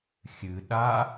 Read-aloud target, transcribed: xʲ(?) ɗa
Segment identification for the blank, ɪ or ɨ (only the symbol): ɨ